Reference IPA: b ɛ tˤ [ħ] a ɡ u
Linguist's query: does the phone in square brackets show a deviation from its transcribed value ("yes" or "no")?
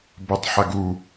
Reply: no